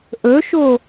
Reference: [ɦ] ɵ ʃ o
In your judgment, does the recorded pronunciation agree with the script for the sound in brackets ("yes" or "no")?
no